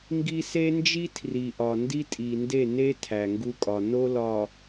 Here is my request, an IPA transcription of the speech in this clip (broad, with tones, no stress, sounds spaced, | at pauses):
ŋ ɡ i˦ s e˦ n d͡ʒ i˦ tʰ r i˨ ʔ ɒ˨ n d i˦ tʼ i˨ n d e˦˨ n e˦ tʰ æ˨ ŋ ɡ u˦ kʼ ɒ˨ n o˦ l ɒ˨